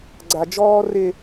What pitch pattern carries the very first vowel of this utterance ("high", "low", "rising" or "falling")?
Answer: high